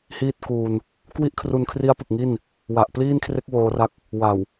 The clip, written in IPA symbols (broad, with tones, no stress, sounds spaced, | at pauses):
h iː˥˩ t̚ k uː˧ n | k w i˥˩ ʔ kʰ r u˧ n kʰ r i˦˥ a̯ p ɯ˨˩ k̚ ŋ i˥˩ n | w a˨˩ ʔ p l iː˥˩ n kʰ r e˦˥ k̚ w oː˧ r a˦˥ k̚ | w a˨˩ w